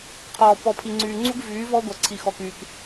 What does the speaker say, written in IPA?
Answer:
qʰɔː˨ pɔ˨pʰi˨ŋ͡ǀyː˨ŋ͡ǀu˦ɡ vyː˨˦vɔ˦ ɡʷa˨ǀʰi˨xɔ˨kyː˨k

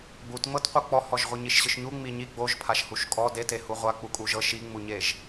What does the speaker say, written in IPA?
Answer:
ɡ͡butŋ͡mɤtqʷɯ k͡pɔhɔʒʁʷɯ ɲiʃɕɯʃɲu ŋ͡miɲi ɡ͡boʒpʰaʃhuʃ kʼɔ dete huʁʷa k͡pukʼuʒɤ ʃiŋ͡muɲeʒ

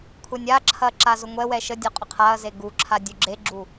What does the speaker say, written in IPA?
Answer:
kʷʰɛnʲaǁʰɐ ǁazʊŋʷɛwɛ ʃədʲɔ qʼʊqʰaɐ̯ze ɡuǁʰa dʲuɡ͡ǁeɡ͡ǁu

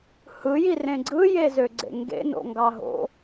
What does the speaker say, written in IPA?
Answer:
hɯji rẽɡ͡ǀɯ jezøɡ͡ǀḛŋɡḛ no̰ŋɡɑɦo̰

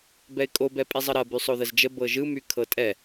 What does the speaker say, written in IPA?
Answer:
bɛɪ̯kʼobɛ pʼizˤəɾɐ bysˤoðəzd͡ʒə bɤʒɯmy kʰɤtʼɛ

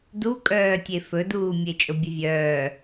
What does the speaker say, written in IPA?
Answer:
dukʼœːtʲe fɵduːmʲe t͡ʃʼobʲəvʲœː

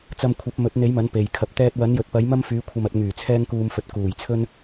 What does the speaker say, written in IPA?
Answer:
t͡sɐ˧mkʷʰɐ˨˥p̚ mɵ˨˥t̚n̪e˨˥jmɐ˨˥n pe˨jkʰɐ˧p̚ t̪ɛː˧t̚wɐ˨˥njɵ˨t̚pɐ˨˥j mɐ˥mfyː˨˧ kʷʰɐ˨mɐ˨t̚ ŋyː˨˩t͡sʰɛː˧ŋkuː˨mfɵ˨t̚ kuː˨˩j t͡sʰɵ˥n

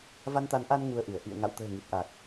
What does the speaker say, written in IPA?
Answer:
va˧nt̪a˨˦nʔa˧n ŋu˧ə̯ʔɨ˧˩ə̯ ʔḭ˧˨ə̯ ŋa̰˧˨wt̪ə̤ː˨˩ ŋi˨˩t̚ʔa˨˩k̚

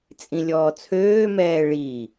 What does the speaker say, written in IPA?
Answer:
t͡sʼĩlʲɔːt͡sʰøːmɛː ɭi

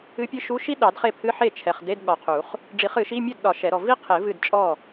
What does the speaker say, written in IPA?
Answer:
ɨ˧˥pʲɨ˧˥ʃu˧˥˧ʃi˥ ɗɑ˨˩˦dχe˥˩pʰɨ˧˥˧ ħe˥˩t͡ʃʰɛ˨χde˧˥˧d ɠɒ˨qʰu˨˩˦χ | ɖ͡ʐi˨˩˦χɨ˨˩˦ʃi˧˥˧ mʲɛ˥˩dɗɒ˨˩˦ ʃɛ˨˩˦ɾɔ˨ vi˥ qʰe˨˩˦v ɨ˥˩dt͡ʃʼɔ˥˩

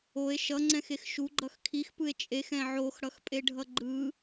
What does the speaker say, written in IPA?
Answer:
oe̯ ʃʌŋ͡ǀɛ̃xex ʃuɡ͡ǃʌx kʰixpɯe̯ t͡ʃʼexɛ̃ ʕoxɽʌxpʼeɖʱʌ ɡ͡ǃɯ

